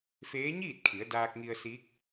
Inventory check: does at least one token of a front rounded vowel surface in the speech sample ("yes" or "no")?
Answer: no